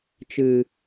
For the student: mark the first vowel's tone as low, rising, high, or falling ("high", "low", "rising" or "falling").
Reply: low